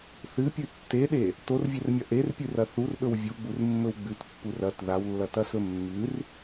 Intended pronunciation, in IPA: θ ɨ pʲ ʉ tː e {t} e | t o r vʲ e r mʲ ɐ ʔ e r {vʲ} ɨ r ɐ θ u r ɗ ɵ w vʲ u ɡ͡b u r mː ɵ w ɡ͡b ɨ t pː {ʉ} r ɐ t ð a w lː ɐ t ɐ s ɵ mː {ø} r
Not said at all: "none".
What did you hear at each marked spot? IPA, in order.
ɗ, pʲ, u, ʉ

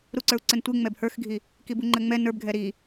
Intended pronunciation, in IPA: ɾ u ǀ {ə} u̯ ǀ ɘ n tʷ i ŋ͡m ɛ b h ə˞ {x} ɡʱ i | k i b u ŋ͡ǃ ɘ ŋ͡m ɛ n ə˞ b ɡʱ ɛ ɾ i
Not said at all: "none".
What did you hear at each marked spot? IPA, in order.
ə˞, x

